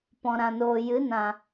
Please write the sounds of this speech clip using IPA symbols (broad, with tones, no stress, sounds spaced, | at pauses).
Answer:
p ɔ̃˨ ɾ ã˨ n oː˨ j ɨ˨˦ n ã˨